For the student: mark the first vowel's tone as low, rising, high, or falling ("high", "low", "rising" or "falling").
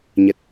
low